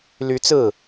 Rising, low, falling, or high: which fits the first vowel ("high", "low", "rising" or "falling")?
rising